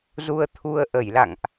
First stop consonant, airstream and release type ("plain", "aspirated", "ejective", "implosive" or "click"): aspirated